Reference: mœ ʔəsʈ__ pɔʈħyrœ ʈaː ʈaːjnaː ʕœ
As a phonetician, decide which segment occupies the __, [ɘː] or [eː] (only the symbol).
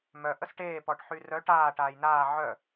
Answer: eː